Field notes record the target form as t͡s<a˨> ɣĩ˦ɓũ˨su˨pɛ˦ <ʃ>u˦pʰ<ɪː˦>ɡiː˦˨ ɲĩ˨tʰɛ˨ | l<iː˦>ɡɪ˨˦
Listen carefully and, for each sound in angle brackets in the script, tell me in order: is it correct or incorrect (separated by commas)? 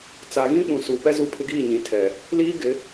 correct, incorrect, incorrect, correct